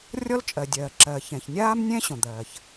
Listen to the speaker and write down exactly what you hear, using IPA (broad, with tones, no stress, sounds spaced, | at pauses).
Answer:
rʲ ɔ˥ l t͡ʃʼ ɜ˨ dʲ ɜː˨ ǁ ɜ˨ ç ɛ̃˨ ç nʲ aː˥ m nʲ ɛ̃˥ ɕ õ˨ d̪ ɜː˨ ç